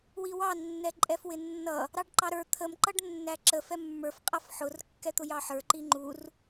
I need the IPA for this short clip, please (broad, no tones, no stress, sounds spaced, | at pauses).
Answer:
w i w ɑ nː ɛ ǃʼ ɛ f w ɪ nː ʌ | ɾ ɑ ɖ ǃ ɑ ɾ ə˞ t̪ʰ ə m ǃ ʌ ɖ nː æ ǁ ə f ɛ mː ə˞ f qʼ ʌ f ħ ʊ r kː ɛ t̪ ʊ j ɑ ħ ə˞ ǃ i ŋ͡ǃ u r